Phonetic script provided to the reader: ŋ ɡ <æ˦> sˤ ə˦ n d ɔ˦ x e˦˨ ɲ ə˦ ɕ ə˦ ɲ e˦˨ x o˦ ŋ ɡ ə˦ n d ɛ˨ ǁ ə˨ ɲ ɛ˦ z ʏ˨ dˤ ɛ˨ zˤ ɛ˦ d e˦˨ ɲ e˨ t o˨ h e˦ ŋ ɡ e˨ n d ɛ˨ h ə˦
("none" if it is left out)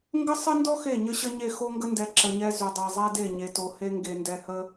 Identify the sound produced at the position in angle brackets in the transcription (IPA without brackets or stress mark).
ə˦